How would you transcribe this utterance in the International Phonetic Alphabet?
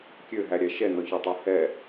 kʲøɦæɾʲæ ʃɛnɔçɔtˤø hɛ

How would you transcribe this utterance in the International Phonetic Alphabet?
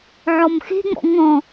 ʕɔmxe̤ŋ͡mɔ̰ ŋɔ̃

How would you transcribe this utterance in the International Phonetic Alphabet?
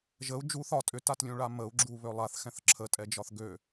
ʒəu̯ d͡ʒu θɒ tʼʏtatlʲũɭa məu̯ɡ͡ǁu βølˠaθ xɛ̃θǁʰətʼɛ d͡ʒɒθɡø

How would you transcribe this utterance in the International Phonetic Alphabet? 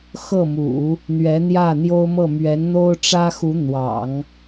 xɤ˥˩mṵ˨˩˦ | n̪ɥɛ˧˥n̪jä˥˩n̪jo˥ʊ̯mɤ˥˩ mɥɛ˧˥nn̪o˥ʊ̯ʈ͡ʂä˥xu˧˥ n̪wɑ̰˨˩˦ŋ

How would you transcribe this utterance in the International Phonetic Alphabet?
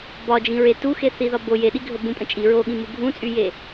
bɒd͡ʒĩɹe tuxeθiðɒ bo jeɗiɡʱə bũpʼə̃ t͡ʃʼi ɹoɠĩmu ɡʱũt͡sʼyje

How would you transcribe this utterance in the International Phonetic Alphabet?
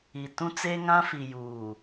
i˨tũ˦t͡seː˦ ŋã˦fi˨juː˨

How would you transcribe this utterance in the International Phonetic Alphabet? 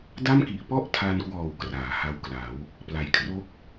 da˥˩mki˨˩ʔ pɔ˥˩ʔtʰa˧nkwɔː˨˩w kraː˩˦ha˧wkla˩˦w | pla˩˦j kʰro˦˥k̚

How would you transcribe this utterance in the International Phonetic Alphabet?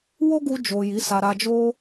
wo˦ɡu˧d͡ʒo˨ ji˨˦sa˧ɾa˧d͡ʒo˦

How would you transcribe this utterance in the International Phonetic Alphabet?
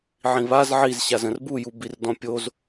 ʕĩβaz ʕiz ɕazə̃rbuju birdɔ̃pʲoz

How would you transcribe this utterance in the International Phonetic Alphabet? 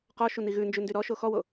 qɔʃu niɣʉnd͡ʒʉ ndyɾɔʃo xɔwo

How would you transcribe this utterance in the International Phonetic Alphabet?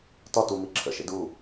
tɒtumi ǁʰə̰ʃḛd u

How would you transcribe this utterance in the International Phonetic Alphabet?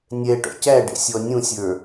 nʲɛʈɔ̰ cæɖɛ̰sʲɔ nʲũsʲə˞

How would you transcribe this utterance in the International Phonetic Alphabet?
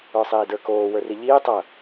ə˞sˤiːdə˞koː wə˞riʎiː tˤɐ

